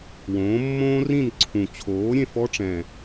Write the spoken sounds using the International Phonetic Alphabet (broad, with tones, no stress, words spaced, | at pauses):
wõː˩˥ mːõː˦˥rĩ˥˩n ǀʰũ˨˩ t͡ɕʰoː˩˥ɾʲẽ˥˩f ɔ˦˥ʈ͡ʂɛ̃˨˩